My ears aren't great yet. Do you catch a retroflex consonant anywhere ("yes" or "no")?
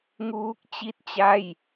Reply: no